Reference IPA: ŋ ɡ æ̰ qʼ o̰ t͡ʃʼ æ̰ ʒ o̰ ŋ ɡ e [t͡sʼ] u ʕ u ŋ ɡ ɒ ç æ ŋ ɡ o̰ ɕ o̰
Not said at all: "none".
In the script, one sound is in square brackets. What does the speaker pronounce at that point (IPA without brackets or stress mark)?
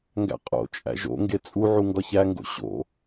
t͡sʼ